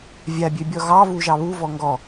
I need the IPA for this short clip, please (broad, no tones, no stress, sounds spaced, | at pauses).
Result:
vʲ a bʲ ø bʲ ɔ ɣ ɑ v u ʒ ɑ β u v ɔ ŋ ɡ ɔ